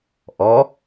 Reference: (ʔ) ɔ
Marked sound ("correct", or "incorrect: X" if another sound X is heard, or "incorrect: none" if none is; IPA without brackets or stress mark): correct